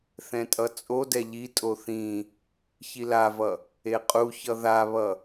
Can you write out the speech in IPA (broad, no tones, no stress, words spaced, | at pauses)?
θɛ̃tʼʌt͡sʼodɛ ʎitʼo θĩ | çilavʌ | eqʼuçʌ ðaβʌ